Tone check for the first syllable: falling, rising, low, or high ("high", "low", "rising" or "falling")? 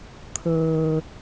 low